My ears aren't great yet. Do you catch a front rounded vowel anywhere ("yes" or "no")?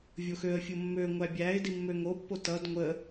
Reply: yes